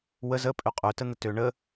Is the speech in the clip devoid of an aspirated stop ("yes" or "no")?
yes